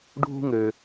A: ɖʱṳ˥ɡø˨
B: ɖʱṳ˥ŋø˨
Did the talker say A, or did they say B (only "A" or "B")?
B